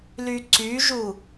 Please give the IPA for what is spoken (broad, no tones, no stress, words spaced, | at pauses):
lyǀyʒu